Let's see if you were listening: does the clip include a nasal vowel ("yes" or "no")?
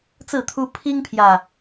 no